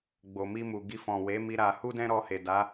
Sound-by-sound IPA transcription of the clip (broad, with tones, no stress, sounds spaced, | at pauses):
ɡ͡b o˨ m i˧ m u˨ ɡ i˧ f ɔ̃˨ w e˨˦ m i˧ ɾ a˧ h u˦ d ɛ̃˦ ɾ ɔ˧ h e˨ d a˨˦